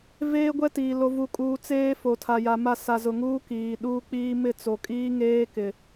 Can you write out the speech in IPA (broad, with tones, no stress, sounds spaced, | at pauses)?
v eː˦ ɡʷ ɛ˦ t iː˨ l o˨ v u˨ kʼ uː˨ t͡s eː˦ f o˨ tʰ a˨ j a˨ m a˦˨ s a˨ z ʊ˨ ŋ uː˦ k iː˨ ɗ uː˦ k͡p iː˦ m ɪ˦˨ t͡s o˨ kʼ iː˦ ŋ eː˦ k ɪ˨